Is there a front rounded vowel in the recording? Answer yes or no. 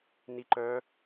yes